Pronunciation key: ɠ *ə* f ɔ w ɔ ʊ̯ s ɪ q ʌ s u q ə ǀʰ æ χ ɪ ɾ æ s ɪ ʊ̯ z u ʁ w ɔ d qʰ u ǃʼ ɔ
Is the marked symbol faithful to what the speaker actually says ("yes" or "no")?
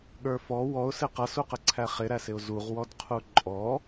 no